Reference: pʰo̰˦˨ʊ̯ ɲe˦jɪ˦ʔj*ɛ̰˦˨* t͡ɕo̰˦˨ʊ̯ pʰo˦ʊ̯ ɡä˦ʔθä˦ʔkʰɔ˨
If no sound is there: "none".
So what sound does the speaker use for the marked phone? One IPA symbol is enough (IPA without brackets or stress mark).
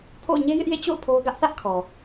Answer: ḛ˦˨